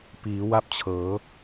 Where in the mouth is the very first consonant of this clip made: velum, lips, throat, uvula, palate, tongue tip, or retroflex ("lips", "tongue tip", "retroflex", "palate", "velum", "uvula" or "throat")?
lips